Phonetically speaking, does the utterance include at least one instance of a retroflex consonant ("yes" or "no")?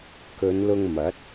no